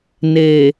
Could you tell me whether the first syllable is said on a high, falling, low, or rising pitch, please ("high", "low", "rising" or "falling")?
low